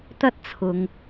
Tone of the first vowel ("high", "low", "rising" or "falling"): high